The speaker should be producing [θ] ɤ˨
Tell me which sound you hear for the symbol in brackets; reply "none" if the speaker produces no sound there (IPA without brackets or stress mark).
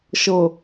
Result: ʃ